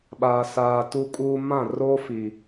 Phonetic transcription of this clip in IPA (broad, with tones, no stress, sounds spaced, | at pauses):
ɓ aː˨ s aː˨ t u˦ kʼ uː˦ m ã˦˨ r o˦ f i˨